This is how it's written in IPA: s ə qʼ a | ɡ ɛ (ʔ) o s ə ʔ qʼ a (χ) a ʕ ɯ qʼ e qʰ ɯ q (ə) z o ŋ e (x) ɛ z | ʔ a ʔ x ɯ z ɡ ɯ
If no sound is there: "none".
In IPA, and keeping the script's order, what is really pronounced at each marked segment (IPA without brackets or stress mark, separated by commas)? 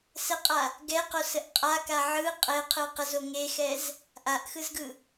q, k, ə, x